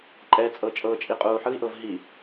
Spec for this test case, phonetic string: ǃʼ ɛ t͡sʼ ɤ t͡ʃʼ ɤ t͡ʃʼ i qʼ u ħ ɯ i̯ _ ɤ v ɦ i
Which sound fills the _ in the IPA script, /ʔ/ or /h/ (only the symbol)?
ʔ